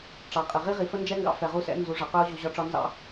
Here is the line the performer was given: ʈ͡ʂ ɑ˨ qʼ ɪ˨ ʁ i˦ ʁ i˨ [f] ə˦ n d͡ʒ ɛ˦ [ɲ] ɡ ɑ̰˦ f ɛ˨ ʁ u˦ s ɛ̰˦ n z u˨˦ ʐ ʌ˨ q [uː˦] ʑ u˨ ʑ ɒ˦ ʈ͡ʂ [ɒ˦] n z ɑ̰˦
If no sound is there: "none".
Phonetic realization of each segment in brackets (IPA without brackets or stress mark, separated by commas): f, ŋ, ʊː˦, ɒ˦